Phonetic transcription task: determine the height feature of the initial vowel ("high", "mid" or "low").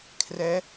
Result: mid